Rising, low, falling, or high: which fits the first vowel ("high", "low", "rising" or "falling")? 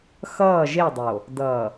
falling